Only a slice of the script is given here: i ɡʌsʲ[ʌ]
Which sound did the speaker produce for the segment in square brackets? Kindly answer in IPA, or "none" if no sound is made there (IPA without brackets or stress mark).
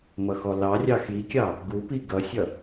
ʌ